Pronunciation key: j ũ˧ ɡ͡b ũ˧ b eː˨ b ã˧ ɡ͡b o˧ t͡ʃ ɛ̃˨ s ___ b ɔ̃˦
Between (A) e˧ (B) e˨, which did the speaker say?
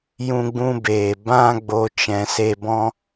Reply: A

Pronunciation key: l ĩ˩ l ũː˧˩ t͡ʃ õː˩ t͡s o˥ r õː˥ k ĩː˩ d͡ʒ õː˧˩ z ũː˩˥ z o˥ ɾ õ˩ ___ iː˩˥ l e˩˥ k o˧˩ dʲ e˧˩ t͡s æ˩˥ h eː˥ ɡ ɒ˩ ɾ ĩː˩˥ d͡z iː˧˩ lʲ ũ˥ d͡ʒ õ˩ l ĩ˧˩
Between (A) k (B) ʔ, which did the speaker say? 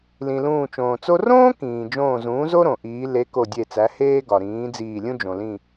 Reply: B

